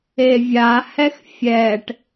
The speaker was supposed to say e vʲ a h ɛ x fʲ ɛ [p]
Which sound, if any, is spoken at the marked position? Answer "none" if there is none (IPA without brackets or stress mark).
ʈ